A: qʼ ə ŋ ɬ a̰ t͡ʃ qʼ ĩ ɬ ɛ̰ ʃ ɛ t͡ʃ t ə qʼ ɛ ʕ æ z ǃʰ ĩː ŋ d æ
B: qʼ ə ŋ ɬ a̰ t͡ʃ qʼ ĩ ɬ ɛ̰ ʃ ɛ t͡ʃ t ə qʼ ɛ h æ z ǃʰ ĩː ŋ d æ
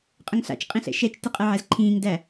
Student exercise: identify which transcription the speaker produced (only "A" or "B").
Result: A